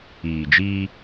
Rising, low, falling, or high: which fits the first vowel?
low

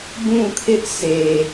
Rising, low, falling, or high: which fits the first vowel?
falling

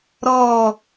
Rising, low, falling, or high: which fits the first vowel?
falling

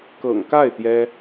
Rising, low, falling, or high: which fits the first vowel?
low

